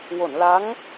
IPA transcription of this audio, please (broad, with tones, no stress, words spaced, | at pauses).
wo˨˩˨n la˧˥ŋ